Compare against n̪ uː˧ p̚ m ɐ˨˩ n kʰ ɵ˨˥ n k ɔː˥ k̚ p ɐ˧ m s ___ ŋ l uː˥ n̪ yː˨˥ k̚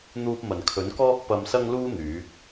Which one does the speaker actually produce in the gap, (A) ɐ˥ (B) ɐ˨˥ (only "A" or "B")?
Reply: A